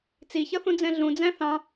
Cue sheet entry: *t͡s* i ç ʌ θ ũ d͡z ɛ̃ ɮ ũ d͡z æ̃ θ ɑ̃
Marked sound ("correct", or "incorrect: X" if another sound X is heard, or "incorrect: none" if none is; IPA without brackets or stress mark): correct